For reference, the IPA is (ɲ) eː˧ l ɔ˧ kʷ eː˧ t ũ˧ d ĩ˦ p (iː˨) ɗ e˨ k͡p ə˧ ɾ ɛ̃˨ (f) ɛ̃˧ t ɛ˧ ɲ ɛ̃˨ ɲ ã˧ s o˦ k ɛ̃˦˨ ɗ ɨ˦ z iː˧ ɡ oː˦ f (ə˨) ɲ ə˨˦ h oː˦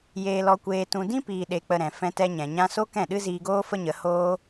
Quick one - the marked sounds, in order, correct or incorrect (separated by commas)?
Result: incorrect, correct, correct, incorrect